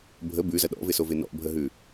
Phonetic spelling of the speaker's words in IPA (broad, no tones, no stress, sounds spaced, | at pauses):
bʱ ə b ʉ z ɐ ɗ ɔ̰ v ɪ s o v ɪ n ɔ̰ bʱ ə ɦ ʉ